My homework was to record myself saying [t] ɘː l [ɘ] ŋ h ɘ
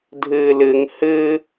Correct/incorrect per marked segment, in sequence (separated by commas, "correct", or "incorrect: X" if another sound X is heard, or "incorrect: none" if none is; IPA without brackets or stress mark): incorrect: dʱ, correct